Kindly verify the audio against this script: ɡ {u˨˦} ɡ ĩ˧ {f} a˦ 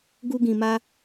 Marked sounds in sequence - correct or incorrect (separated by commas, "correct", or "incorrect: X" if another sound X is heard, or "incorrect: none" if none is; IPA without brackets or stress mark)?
incorrect: u˦, incorrect: m